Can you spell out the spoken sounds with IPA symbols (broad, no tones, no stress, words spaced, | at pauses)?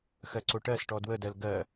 xɜǀoʈɜsʈɔ dwədɜl ɡɜ